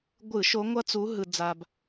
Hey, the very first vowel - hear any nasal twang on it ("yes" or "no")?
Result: no